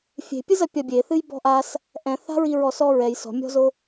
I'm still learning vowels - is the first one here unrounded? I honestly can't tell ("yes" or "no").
yes